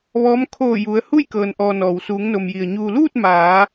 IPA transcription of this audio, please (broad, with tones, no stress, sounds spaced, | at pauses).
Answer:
ʋ ɔː˧˥ m kʰ oː˧˩ j u˩˧ ə̯ h u˥˨ j k ɤː˩ n ʔ ɔː˩ n ɔː˩ w s uː˩˧ ŋ n o˩ m j i˩ ə̯ ɲ uː˩ l uː˥˨ t̚ m aː˩˧